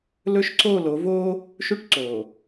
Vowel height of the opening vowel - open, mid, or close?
mid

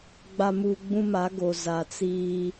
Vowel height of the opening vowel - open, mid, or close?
open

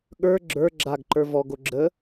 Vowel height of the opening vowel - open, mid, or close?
mid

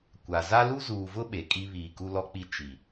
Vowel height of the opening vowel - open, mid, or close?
open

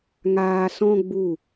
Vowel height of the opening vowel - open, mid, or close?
open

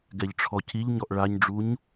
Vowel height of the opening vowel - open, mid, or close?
mid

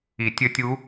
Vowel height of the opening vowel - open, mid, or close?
close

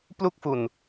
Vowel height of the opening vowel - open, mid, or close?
close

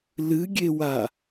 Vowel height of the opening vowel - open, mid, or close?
close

